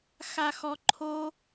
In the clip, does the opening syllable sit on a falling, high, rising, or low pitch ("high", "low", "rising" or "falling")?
low